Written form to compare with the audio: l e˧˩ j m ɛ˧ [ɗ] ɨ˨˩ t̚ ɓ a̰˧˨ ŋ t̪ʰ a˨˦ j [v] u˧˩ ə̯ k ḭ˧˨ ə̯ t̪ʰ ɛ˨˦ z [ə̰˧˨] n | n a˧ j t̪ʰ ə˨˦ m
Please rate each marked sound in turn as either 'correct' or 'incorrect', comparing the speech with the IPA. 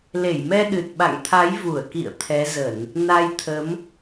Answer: correct, correct, incorrect

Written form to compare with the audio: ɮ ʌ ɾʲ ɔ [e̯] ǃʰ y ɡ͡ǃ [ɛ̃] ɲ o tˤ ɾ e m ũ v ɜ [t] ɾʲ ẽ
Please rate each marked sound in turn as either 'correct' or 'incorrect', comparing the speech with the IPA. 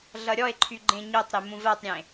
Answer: correct, incorrect, incorrect

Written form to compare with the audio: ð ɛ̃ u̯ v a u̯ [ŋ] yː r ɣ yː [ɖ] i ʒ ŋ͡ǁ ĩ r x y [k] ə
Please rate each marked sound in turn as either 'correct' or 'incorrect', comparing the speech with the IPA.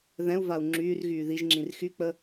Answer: incorrect, incorrect, incorrect

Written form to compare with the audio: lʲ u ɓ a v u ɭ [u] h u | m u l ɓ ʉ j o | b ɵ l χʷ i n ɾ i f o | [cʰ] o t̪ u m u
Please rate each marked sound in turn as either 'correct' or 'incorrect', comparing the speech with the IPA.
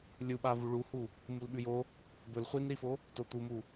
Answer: correct, incorrect

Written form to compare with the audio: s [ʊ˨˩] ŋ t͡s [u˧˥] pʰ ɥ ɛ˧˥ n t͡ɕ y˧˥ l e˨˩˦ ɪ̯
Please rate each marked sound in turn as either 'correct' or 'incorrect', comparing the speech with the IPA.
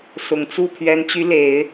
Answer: correct, incorrect

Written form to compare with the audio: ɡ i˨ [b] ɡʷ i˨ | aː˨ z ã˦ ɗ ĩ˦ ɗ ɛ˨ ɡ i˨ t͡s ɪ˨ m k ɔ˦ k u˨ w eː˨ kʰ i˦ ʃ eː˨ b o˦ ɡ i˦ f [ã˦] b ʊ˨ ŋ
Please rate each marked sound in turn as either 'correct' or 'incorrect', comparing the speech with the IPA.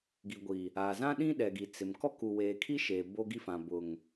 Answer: incorrect, incorrect

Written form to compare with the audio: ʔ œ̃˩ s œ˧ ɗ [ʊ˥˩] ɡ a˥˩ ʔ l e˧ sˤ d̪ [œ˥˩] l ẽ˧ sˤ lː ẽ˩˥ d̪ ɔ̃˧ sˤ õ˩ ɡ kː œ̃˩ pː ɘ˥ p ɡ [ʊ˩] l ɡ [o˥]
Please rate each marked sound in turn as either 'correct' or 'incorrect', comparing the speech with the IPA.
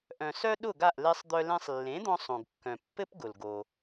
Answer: correct, incorrect, correct, incorrect

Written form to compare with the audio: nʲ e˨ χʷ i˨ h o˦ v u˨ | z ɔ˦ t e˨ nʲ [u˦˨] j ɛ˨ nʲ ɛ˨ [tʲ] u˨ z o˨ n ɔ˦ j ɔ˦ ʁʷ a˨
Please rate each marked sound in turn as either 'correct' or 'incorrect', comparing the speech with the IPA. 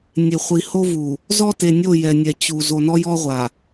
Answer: incorrect, incorrect

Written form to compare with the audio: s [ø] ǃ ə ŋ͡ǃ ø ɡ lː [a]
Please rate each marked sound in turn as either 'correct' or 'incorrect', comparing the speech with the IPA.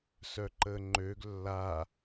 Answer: incorrect, correct

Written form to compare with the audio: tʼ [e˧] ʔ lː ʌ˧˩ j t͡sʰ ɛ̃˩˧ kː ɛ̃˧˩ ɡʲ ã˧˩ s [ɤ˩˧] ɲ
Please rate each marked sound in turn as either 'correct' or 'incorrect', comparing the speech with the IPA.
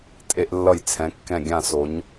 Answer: correct, incorrect

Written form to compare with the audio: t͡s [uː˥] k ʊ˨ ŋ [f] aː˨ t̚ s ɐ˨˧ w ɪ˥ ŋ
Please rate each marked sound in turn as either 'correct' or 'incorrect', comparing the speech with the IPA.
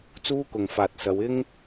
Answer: correct, correct

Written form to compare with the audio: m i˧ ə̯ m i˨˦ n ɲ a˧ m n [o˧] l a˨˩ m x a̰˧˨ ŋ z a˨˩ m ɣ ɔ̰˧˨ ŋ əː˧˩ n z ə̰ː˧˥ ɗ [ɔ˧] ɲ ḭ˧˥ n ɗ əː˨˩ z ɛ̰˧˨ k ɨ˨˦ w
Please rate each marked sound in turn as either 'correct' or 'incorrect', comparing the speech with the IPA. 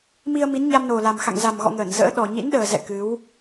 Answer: incorrect, incorrect

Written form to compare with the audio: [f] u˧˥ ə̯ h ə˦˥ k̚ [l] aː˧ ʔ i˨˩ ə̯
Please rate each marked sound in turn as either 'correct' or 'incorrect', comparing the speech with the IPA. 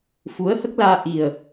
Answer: correct, correct

